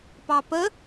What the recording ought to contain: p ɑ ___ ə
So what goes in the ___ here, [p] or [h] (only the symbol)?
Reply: p